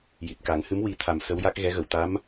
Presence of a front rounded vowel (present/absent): absent